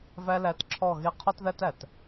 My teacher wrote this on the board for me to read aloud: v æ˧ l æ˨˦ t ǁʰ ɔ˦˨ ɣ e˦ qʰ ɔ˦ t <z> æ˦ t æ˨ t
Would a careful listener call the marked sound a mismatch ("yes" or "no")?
yes